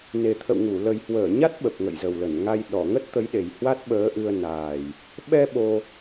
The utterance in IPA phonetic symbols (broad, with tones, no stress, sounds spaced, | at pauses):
n e˨˩ t̪ʰ ə̰˧˨ w ŋ u˧˩ l ə˨˩ j h w əː˧˩ ɲ a˦˥ t̚ ɓ ə˨˩ p̚ ŋ ə̰˧˨ j z ə˨˩ w l ə˧˩ n ŋ a˧ j ɗ ɔ˧˩ ŋ ə˦˥ t̚ t̪ ə˨˦ j ɗ e˨˩ j h w a˦˥ t̚ ɓ əː˨˦ ʔ ɨ˧ ə̯ n aː˨˩ j | ɓ ɛ˧ ɓ o˧